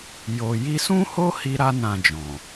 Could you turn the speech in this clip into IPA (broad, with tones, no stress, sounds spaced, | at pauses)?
j o˨ j i˧ s ũ˦ h o˦ h i˦ ɾ a˦ n ã˧ d͡ʒ ɔ̃˨